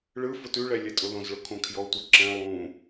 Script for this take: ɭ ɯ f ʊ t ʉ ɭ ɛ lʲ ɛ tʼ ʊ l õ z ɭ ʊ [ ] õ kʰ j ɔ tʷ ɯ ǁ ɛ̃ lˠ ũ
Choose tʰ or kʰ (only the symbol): kʰ